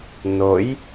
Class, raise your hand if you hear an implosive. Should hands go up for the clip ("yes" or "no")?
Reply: no